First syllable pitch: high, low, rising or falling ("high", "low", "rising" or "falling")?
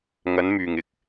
rising